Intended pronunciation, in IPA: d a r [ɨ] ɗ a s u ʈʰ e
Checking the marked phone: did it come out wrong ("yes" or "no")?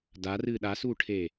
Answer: no